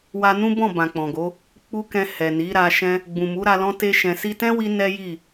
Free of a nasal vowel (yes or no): no